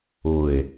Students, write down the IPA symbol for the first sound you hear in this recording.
ʊ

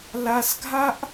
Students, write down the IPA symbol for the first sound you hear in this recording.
l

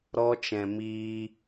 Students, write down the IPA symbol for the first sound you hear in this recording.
ɾ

